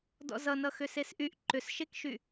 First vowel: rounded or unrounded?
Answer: rounded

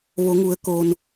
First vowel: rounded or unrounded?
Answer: rounded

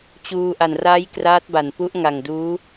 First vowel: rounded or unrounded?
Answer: rounded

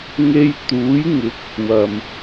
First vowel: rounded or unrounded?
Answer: unrounded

